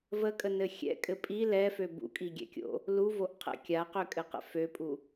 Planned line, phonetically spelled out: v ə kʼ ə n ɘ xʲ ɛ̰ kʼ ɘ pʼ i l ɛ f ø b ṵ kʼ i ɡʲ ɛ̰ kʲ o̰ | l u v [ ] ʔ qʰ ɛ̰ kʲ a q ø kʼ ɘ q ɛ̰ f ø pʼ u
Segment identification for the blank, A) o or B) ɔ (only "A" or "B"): A